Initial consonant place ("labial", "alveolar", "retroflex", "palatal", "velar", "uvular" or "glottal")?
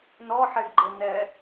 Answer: alveolar